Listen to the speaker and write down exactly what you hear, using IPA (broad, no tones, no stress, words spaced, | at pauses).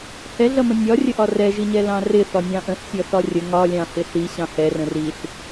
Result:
hɛɮʌmə̃ nʲɒrʲəʔɒ rɛʒiɲɛlɑ̃ rɪθɒnʲɑ̃ ʔə̃ɬsʲʌθɒ rʲə ŋɒlʲɑ̃hɪ ɬiɕɑ̃ hɛrə̃ riɬ